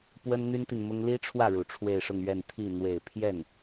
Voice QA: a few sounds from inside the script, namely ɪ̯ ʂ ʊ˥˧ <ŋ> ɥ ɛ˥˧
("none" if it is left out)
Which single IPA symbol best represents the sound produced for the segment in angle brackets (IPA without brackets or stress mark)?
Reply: ŋ